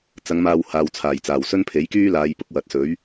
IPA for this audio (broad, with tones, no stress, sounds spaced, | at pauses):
t͡s ɐ˨˧ ŋ m aː˨ w h aː˨ w t͡sʰ aː˨˩ j t͡s aː˨˩ w s ɵ˥ n pʰ e˨˥ j k yː˥ l aː˨˧ j p ʊ˥ k̚ w ɐ˨ t̚ s ɵ˨˥ ɥ